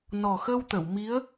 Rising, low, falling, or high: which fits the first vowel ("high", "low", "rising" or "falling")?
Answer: low